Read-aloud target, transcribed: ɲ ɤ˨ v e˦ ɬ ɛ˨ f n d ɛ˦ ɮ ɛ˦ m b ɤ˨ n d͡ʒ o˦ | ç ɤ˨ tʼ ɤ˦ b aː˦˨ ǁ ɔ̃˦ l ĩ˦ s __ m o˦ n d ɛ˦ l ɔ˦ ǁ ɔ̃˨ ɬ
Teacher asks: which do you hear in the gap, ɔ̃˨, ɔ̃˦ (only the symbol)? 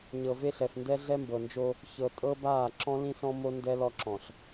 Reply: ɔ̃˦